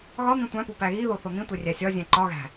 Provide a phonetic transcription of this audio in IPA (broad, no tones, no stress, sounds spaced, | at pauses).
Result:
ɣ ɒ n̪ ĩ tʷ æ̃ p u p æ ɣ i ð o θ o n̪ ĩ tʷ e rʲ æ sʲ ɒ zʲ æ̃ ǃ ɒ ɣ æ̤